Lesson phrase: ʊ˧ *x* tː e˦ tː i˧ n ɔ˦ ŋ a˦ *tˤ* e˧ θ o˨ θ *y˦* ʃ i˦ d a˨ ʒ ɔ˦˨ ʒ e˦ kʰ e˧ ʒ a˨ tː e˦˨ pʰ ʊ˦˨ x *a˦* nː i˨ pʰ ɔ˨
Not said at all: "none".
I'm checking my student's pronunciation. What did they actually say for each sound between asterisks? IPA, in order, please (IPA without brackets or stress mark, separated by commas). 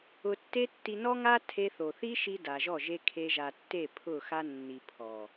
none, tʰ, i˦, a˦